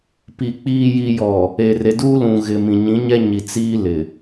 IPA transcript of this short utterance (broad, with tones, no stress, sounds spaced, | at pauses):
p i˨ k͡p iː˨ j i˨ j ɔ˨ | e˨ r e˨ d uː˦ l ũ˨ ɣ ɪ˨ m ĩ˨ ɲ ĩ˨˦ ɲ ɛ˦ ɲ i˨ t͡s iː˦ l ɪ˨